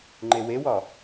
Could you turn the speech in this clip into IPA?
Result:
ŋ͡ǃ e w e w ɒ

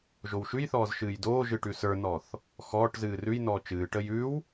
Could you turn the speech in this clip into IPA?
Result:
ʒ o w ʃ ʉ j θ ɔː z ʃ ɨː j d oː ʒ ɨ ʈ ʉ s ə˞ n ɔ θ | x ɔː ʈ z ɨː r ʉ j n ɔː t͡ʃ ɨː ʈ ə j ʉ w

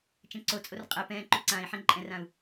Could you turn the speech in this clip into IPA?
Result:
t͡ʃ ɛ̃ ǀ o t͡sʼ o r qʼ ɛ p ɛ̃ː ǃ ʉ ǀ ãː i̯ ħ ɛ̃ ǃʼ ɛ̃ r ã u̯

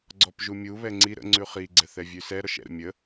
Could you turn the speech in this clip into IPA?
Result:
ɡ͡ǀ ɔ p ʒ u mʲ u β ɛ ŋ͡ǀ i ɾ ə̰ ŋ͡ǀ ʉ χ i ɡ͡ǀ ɛ θ ɛ vʲ ʉ s ɛ ɾ ɔ ʃ ɛ̰ ɾ ə̰ mʲ ə

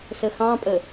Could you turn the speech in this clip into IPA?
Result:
s ə x ɑ̃ pʼ ə

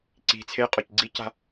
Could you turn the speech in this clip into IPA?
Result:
ǀ i̤ t͡sʰ e qʼ ɔ c ɡ͡ǀ i c a̤

